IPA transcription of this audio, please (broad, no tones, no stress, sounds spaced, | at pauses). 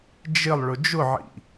d͡ʒ ɪ lˠ ɭ ʊ d͡ʒ ʊ ʕ ḭ